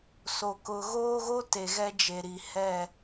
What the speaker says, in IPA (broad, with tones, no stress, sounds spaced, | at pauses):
s o˨ k ʊ˨ ɣ oː˦ ɣ o˦ t e˨ ɣ ɛ˦ d͡ʒ e˨ ɾ i˨ h ɛ˦˨